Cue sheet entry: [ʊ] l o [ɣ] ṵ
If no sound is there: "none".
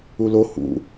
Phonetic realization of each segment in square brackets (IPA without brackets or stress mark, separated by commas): u, h